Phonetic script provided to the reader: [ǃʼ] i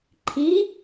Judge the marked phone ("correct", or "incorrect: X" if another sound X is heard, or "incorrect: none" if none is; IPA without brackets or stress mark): incorrect: ǃʰ